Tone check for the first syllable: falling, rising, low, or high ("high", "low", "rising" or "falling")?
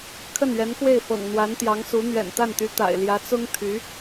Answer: falling